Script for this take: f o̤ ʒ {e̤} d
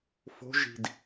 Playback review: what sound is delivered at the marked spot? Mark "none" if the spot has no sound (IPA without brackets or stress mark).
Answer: i̤